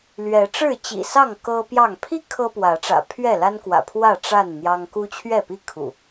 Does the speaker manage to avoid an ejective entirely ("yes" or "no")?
yes